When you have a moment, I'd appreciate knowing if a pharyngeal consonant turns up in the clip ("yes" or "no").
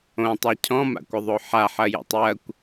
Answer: yes